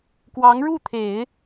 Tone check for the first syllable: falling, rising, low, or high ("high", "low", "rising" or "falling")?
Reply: rising